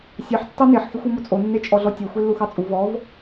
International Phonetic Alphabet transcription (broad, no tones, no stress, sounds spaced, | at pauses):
sʲ ɑ ħ tː ɑ n e ħ x e xʷ u m o t͡sʼ o nː e t͡ʃʼ ɔ ɮ ɔ tʲ e xʷ e lː u x ɑ t͡sʼ u v ɔ v